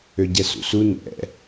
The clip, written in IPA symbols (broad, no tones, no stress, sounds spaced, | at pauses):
ø ɟ ɛ s ṵ s u n ɛ̰